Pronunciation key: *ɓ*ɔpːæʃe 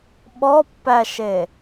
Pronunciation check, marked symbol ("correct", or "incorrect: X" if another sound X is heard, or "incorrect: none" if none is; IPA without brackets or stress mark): correct